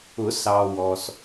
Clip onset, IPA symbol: ʊ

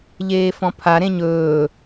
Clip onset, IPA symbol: ʎ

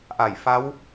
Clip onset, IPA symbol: ʔ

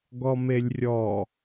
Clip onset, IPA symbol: ɡ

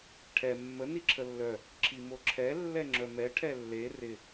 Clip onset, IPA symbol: ʈʰ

